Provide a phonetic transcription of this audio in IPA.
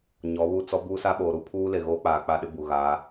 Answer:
ɲ ɔ˨˦ β u˦˨ t͡s ɔ˦ b u˦ s a˦ ɓ oː˨ ɾ u˦ pʰ uː˦ l e˨ ɣ oː˦ k͡p aː˨ k͡p a˦˨ ɗ ɪ˦ b u˨ ɣ a˨˦

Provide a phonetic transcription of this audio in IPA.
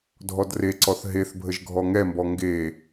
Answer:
dʱ ɔ d r e ǀ ɔ θ ɦ e θ bʱ ə ʒ ɡʱ ɔ ŋ ɛ m b ɔ ŋ ɡ e

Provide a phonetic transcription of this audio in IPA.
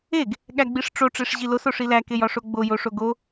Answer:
e ɡ | ɠ æ ɡ͡b i ʂ ʈ͡ʂ o ʈ͡ʂ e ʂ ʑ i l o s o ʂ i l æ k e j ɒ ʂ o ɡ͡b o j o ʂ o ɡ o

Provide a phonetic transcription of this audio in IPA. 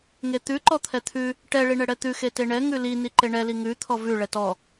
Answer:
ŋ e t̪ ʉ ǃ ɔ t̪ʰ ɛ t̪ʰ ʉ | ʈ ɛ ɭ i ɳ ɛ ɽ ɛ t̪ ʉ x e t e ɳ ɛ ŋ ʉ l i n i ǃ e ɳ ɛ l i ŋ ʉ t̪ʰ ɔ v ʉ ɭ ɛ t ɔ

